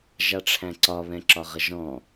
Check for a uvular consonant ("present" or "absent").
present